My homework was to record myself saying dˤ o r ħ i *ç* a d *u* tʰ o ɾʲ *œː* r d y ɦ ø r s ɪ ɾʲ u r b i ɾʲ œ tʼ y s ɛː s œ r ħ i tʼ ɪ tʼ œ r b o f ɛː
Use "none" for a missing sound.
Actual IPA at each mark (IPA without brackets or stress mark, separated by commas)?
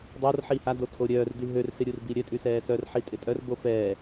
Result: h, o, œː